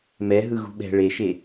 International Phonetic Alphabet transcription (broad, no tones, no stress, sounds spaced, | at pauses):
m ɛ ɦ ɯ ɣ ṳ ɓ ɛ̤ ɭ e ʃ e